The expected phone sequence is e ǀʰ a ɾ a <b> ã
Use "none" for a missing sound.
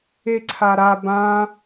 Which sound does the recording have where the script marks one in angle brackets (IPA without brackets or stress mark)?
b